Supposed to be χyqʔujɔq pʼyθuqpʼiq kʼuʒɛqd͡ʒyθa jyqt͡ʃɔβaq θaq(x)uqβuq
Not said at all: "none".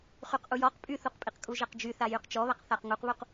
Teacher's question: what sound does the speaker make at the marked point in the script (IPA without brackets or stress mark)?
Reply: ŋ